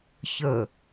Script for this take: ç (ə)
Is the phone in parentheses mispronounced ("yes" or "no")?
no